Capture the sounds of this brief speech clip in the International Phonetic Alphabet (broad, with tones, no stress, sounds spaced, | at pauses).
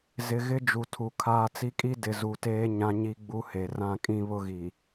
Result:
z ɪ˨ ɣ ɪ˦ d͡ʒ u˨ tʰ u˨ kʰ aː˦ t͡s i˦ kʼ i˦ d ɪ˨ z u˨ t eː˦ ɲ ã˦ ɲ i˦ ɡ͡b u˦ h e˨ r ã˦˨ kʼ ĩ˦ β ʊ˦ ɣ i˨